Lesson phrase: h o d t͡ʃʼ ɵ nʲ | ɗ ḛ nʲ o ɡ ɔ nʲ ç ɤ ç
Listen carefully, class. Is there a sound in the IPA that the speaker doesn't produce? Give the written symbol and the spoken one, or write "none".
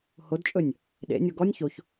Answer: ɤ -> o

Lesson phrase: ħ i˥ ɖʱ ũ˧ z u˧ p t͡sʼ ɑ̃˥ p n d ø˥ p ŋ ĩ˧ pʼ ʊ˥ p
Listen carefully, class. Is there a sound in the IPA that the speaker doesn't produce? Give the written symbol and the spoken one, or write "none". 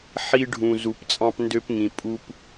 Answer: ʊ˥ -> u˥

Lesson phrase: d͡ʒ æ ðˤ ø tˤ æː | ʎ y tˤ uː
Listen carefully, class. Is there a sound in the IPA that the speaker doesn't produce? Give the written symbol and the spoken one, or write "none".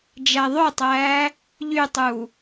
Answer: none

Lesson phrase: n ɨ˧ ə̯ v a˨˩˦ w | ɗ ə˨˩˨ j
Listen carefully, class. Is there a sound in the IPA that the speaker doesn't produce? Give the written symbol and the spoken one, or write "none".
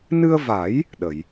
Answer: w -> j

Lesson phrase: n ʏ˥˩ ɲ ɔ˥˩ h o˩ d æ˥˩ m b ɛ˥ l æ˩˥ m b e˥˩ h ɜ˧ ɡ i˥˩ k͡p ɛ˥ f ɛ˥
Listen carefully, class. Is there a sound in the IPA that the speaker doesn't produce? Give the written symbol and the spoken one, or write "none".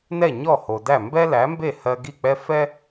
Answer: ʏ˥˩ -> ɛ˥˩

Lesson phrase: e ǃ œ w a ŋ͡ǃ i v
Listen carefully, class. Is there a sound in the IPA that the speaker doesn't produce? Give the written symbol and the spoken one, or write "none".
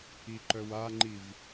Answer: e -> i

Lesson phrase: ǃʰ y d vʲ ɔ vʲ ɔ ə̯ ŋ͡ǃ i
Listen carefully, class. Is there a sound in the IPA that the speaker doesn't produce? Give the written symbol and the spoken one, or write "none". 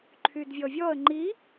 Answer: none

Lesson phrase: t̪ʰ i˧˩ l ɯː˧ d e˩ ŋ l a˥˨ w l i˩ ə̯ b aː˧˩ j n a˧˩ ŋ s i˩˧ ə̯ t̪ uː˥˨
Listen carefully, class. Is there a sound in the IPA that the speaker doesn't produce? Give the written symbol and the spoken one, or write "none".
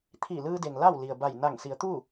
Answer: aː˧˩ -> a˧˩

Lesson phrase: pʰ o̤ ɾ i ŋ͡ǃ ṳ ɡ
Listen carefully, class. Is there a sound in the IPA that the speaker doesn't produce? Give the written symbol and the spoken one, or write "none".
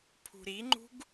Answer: o̤ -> ṳ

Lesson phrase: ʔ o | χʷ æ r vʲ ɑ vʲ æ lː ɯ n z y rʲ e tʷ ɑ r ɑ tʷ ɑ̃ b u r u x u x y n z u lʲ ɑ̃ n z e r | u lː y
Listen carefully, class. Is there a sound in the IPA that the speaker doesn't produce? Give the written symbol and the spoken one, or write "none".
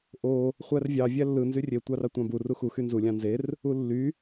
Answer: none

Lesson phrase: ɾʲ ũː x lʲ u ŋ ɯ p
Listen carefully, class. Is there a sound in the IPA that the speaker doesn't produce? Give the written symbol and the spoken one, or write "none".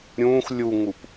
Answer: ɯ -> u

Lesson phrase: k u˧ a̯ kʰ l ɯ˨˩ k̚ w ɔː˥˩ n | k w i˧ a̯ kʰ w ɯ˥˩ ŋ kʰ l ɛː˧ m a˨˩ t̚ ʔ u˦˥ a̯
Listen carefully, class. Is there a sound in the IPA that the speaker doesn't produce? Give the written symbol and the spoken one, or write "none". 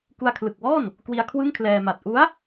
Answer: none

